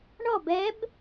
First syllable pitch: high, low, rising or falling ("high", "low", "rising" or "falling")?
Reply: falling